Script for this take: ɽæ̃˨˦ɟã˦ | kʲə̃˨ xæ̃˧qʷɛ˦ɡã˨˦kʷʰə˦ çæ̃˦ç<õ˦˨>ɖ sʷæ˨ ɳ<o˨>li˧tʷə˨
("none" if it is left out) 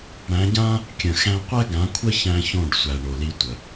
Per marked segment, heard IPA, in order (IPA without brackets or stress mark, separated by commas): õ˦˨, o˨